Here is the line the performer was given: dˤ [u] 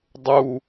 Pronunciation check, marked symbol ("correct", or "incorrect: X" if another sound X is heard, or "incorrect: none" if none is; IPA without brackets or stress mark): correct